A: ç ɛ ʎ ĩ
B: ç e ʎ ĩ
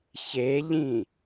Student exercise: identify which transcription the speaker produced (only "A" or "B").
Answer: B